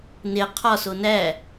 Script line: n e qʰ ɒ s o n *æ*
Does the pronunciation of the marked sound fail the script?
no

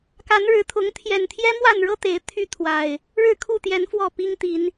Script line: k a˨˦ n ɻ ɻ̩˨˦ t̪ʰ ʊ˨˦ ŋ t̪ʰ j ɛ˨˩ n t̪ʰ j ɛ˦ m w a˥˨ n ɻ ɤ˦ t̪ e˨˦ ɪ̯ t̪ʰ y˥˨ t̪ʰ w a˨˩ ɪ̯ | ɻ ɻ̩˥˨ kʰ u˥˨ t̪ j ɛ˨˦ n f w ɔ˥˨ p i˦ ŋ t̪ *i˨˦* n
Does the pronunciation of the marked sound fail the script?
no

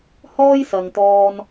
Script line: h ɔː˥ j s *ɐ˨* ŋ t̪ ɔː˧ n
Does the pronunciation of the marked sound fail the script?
no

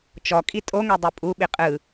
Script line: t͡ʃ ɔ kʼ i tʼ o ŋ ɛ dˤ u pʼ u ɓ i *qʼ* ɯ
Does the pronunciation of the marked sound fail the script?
no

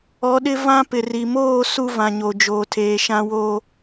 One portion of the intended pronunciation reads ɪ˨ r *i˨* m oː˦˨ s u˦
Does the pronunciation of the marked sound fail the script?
no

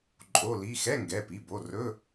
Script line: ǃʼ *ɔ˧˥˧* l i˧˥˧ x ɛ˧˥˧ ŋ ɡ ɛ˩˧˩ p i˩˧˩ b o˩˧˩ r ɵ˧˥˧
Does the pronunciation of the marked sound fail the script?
yes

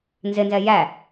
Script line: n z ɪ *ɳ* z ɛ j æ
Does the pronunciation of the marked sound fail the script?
yes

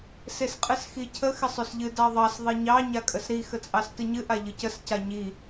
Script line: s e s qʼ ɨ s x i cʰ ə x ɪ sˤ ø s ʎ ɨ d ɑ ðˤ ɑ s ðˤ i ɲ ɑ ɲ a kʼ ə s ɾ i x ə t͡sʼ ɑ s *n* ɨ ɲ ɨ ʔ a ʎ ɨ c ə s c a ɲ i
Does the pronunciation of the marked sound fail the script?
yes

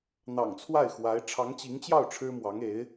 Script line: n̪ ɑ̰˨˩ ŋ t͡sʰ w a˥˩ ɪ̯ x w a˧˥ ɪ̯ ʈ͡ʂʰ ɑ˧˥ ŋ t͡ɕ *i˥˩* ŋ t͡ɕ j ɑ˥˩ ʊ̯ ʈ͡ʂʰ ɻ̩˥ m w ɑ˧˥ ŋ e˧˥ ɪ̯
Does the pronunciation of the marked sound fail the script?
yes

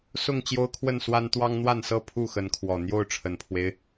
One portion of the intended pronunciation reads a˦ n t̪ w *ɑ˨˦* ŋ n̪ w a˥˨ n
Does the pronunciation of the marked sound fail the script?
yes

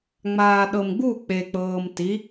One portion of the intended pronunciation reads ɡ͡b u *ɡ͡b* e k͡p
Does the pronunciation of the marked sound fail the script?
yes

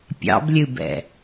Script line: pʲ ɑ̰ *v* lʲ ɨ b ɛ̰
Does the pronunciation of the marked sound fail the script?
yes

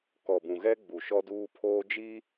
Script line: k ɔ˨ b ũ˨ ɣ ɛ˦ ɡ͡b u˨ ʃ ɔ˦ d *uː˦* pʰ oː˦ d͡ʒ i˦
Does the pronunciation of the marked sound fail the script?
no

